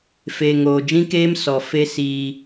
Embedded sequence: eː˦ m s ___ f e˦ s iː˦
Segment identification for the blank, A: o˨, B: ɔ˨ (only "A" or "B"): B